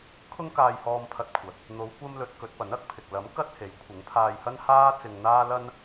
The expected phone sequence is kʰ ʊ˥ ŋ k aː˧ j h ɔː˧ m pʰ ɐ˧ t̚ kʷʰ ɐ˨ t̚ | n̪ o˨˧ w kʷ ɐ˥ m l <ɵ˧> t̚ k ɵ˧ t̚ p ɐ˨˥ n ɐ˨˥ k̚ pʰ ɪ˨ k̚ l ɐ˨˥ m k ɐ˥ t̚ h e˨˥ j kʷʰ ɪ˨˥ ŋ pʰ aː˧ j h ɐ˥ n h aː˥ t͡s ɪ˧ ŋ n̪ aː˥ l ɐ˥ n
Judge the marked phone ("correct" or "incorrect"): correct